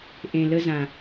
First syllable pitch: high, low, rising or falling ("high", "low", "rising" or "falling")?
low